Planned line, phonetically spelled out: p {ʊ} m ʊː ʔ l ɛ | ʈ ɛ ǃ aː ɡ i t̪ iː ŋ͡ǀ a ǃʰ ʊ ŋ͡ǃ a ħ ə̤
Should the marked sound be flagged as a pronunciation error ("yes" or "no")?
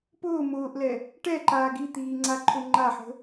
yes